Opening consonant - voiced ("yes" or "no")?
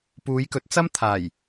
no